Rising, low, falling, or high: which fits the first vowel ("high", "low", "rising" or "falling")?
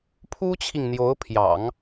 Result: high